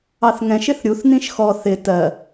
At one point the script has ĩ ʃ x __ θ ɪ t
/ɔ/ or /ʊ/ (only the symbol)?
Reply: ɔ